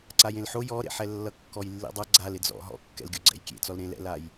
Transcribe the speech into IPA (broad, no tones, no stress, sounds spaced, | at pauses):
ǀ a j ẽ l ħ o j ɔ ɾ ḛ ħ ɛ lː ʌ kː ɔ j lː ḭ dˤ ʌ ɡ͡ǀ a l ɪ d͡z ɔ̰ ɦ ɔ̰ kː ɛ̰ l ɡʲ o ɡ͡ǀ ɛ̰ j kʲ ḛ t͡s ɔ l ɾ ẽ l ɛ̰ l a j